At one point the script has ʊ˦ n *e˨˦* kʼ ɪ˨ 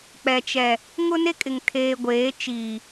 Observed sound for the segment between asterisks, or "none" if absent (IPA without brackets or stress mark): e˦